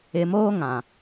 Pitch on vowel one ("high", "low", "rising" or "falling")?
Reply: low